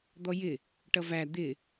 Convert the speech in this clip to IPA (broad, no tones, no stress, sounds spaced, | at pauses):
d̪ ɔ j ɪ | ʈ ʌ v æ d̪ ɪ